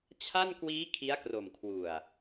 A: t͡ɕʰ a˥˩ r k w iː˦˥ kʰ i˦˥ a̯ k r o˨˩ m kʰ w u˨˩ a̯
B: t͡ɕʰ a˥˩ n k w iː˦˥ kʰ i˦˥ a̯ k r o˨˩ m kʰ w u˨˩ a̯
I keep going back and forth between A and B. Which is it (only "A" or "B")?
B